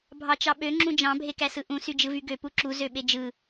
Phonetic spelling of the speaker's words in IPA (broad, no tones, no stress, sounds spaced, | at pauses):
bʱ ɑ t͡ʃ ɑ ɓ ø ŋ͡ǁ ũ d͡ʒ ɑ̃ bʱ e k æ s ɯ ʔ ũ s y d͡ʒ ɯ v y ɡ ø p u ǁ u z ø ɓ e d͡ʒ ɯ